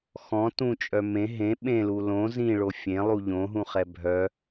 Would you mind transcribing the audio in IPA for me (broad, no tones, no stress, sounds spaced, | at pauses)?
x ɔ̃ t ũ t͡ʃʼ œ m ẽ ɦ ẽ ɓ ẽ l u l õ z ĩ ɭ o fʲ ẽ lˠ u ʎ õ ɦ ũ χ ɛ bʱ œ